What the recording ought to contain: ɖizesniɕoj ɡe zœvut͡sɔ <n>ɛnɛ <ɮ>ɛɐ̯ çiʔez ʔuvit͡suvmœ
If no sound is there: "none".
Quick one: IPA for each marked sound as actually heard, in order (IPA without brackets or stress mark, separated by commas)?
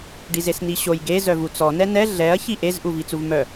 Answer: n, ɮ